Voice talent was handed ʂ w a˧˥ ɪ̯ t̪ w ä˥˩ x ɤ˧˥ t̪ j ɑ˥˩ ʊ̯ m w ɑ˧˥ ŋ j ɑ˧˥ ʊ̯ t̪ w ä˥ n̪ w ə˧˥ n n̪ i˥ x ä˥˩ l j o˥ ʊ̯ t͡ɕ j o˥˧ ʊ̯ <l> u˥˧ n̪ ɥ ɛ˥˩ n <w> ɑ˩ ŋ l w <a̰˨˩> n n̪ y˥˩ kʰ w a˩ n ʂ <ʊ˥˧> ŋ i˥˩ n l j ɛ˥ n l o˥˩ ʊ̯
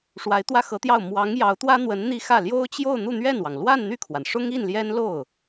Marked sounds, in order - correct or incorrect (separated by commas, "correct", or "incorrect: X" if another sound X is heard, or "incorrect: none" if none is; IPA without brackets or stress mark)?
incorrect: n̪, correct, incorrect: a˥˧, incorrect: ʊ˥